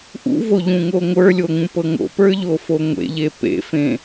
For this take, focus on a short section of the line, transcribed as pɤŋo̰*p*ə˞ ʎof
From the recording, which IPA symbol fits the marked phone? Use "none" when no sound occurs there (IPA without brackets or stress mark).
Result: p